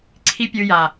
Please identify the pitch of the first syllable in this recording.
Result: high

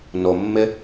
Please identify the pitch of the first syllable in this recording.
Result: low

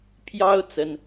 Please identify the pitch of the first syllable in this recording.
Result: high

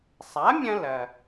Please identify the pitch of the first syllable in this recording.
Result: rising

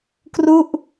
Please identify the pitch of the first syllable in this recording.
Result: falling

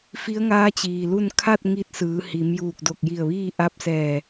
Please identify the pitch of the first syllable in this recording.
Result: rising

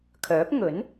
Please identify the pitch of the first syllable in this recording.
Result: rising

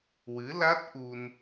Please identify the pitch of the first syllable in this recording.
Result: rising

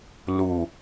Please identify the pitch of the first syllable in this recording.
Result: low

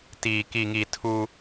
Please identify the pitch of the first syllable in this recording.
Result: low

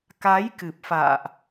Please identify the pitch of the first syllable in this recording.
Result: rising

